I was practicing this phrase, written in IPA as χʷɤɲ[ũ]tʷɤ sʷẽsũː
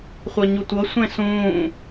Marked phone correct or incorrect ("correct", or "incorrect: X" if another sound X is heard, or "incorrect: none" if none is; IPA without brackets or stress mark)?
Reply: incorrect: u